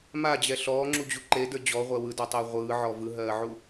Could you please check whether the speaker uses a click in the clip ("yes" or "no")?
yes